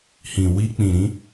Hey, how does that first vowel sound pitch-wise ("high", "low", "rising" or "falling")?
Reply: low